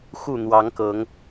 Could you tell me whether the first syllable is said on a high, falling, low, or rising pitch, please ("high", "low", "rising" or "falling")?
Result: falling